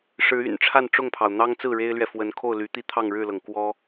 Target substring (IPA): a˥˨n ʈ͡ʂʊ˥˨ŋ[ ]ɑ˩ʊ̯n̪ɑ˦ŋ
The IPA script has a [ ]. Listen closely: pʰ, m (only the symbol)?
pʰ